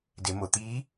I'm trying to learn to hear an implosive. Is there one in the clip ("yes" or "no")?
no